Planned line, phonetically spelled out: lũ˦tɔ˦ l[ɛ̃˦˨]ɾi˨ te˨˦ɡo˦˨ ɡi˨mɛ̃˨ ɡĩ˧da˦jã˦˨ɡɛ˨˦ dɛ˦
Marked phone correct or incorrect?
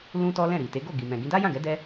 correct